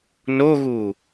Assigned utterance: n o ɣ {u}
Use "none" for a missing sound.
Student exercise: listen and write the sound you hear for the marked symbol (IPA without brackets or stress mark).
u